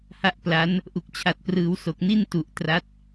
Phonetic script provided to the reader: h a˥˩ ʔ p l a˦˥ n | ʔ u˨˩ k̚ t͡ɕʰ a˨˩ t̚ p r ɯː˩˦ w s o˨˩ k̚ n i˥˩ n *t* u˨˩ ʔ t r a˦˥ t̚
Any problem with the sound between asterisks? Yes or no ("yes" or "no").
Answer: no